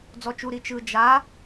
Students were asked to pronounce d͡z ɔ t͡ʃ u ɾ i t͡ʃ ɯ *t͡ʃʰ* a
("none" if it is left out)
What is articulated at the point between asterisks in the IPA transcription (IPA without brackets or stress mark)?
d͡ʒ